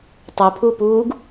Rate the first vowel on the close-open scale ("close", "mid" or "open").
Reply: mid